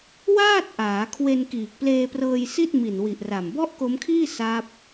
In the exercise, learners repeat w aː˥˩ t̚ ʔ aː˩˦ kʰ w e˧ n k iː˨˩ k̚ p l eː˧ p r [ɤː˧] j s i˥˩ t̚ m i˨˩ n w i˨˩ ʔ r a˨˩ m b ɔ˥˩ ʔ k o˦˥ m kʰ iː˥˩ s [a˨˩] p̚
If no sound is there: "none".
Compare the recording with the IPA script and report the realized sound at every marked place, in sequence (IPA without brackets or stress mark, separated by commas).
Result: ɤː˧, a˦˥